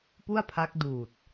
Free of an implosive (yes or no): yes